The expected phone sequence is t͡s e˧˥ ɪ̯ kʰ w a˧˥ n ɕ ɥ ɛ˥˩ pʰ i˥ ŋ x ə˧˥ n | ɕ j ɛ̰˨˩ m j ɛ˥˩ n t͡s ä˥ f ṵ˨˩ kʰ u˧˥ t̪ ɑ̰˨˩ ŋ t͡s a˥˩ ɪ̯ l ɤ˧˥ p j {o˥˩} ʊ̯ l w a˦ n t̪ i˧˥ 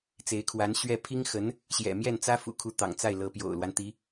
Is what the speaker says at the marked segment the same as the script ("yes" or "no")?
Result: no